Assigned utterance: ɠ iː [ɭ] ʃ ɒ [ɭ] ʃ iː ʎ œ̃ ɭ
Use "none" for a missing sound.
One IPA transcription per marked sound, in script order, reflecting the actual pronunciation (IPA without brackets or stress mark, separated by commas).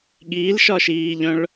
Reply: l, none